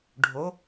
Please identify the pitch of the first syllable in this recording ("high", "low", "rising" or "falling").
rising